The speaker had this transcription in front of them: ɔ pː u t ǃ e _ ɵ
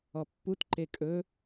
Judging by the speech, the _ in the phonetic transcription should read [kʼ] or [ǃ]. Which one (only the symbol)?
kʼ